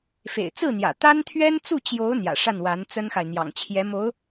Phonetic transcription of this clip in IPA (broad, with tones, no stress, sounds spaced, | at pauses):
f ḛ˨˩ ɪ̯ t͡s ɹ̩˥˩ n̪ j ä̰˨˩ t̪ a˥ n t̪ʰ ɥ ɛ˥ n t͡s u˥˩ t͡ɕ j o˧˥ ʊ̯ n̪ j ä̰˨˩ ʂ a˥˩ n w a˧˥ n t͡s ə˥ n x a˨ ɪ̯ n̪ j ɑ̰˨˩ ŋ t͡ɕʰ j ɛ˧˥ m o˧˥ ʊ̯